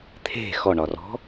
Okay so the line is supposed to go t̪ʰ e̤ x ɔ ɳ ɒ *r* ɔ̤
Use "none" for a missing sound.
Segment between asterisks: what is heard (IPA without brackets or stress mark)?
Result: r